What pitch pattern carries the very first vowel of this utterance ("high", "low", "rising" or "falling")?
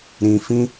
low